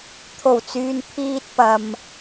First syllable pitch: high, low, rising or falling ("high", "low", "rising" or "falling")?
low